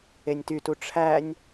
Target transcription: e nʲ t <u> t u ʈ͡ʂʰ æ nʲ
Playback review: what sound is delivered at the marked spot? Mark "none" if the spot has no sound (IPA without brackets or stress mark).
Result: y